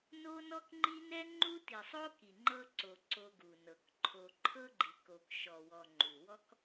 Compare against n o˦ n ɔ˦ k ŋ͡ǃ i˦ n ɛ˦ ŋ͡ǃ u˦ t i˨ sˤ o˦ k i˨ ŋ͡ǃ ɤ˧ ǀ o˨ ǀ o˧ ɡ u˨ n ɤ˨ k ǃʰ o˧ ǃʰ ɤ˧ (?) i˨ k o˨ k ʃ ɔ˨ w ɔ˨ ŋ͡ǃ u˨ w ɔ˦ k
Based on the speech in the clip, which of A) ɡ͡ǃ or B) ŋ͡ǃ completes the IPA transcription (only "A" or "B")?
A